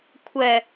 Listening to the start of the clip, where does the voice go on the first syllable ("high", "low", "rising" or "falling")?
low